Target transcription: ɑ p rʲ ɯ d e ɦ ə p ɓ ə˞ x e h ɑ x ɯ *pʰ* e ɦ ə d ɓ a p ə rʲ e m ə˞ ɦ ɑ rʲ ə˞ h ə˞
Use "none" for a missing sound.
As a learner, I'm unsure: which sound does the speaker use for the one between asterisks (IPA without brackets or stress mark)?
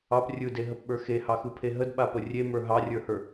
pʰ